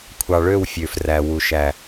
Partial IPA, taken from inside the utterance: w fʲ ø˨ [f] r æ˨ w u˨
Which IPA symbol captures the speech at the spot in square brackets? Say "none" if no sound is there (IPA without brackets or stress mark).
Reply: f